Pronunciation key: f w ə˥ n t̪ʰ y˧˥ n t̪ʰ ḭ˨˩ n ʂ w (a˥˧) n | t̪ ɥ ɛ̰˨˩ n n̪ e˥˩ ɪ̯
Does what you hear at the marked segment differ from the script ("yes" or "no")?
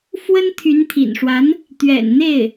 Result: yes